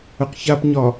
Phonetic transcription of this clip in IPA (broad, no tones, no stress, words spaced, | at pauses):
əqçapɲɒ